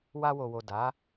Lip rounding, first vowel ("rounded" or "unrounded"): unrounded